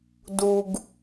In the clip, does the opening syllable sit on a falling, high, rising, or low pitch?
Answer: low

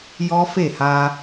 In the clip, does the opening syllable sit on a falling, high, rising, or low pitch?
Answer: high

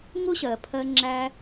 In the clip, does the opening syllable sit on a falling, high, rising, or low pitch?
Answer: high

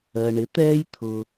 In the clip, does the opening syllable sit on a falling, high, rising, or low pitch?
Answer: low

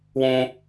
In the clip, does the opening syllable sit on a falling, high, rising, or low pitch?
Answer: high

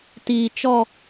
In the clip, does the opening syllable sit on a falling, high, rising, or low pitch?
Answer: low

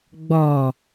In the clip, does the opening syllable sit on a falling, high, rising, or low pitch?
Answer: low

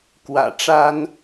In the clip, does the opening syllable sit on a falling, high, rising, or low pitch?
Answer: low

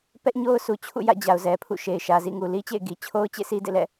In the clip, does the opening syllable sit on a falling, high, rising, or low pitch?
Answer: high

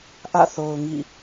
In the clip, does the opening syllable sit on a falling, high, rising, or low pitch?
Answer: falling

